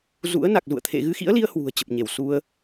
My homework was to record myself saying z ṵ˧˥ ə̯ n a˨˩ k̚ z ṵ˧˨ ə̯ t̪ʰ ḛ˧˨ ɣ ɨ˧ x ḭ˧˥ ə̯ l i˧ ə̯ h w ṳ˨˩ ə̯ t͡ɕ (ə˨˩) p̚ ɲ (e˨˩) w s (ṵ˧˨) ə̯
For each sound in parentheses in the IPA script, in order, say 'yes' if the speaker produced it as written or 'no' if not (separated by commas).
yes, no, no